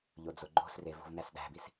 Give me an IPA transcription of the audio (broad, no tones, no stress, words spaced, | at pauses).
ʎod͡zoɡ͡ǃo̤sre vo̤vnæsɗæ̤bis